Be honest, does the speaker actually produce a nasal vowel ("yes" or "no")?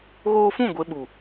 yes